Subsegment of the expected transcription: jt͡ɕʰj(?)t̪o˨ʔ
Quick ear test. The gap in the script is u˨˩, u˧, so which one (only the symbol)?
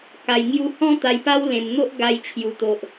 u˨˩